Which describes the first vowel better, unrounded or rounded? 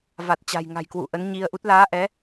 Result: unrounded